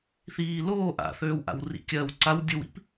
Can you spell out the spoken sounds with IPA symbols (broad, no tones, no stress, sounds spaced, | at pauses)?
θ iː l oː ʔ a̰ θ øː w ʔ a̰ w r ḭ kʲ ɜ w ǀ a w dʲ ɯ w ḭ p